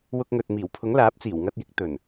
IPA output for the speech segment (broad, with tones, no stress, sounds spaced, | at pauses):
w ʊ˧ k̚ ŋ ɵ˨ t̚ m iː˨˩ w pʰ ʊ˨˥ ŋ l aː˨˥ p̚ t͡s iː˨˩ w ŋ ɐ˧ t̚ j ɪ˨˥ k̚ t̪ ɵ˨˩ n